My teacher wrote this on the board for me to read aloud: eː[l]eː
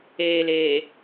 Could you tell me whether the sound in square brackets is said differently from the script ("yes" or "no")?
no